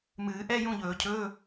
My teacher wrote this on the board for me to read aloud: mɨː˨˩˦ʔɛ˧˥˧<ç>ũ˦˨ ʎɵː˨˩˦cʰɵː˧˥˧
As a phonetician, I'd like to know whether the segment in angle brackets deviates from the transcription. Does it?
yes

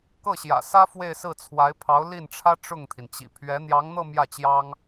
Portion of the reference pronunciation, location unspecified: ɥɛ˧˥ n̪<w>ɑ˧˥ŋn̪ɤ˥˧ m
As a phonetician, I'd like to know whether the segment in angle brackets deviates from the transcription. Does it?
yes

